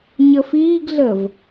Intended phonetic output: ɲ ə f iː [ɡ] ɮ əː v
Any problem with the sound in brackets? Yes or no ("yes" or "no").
no